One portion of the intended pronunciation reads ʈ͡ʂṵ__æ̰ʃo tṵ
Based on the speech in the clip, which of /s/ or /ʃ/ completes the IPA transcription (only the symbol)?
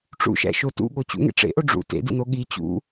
ʃ